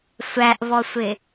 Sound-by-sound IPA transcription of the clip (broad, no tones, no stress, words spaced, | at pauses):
sʷæʔvɔsʷɪ